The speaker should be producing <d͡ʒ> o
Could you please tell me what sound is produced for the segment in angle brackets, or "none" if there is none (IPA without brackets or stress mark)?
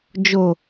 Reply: d͡ʒ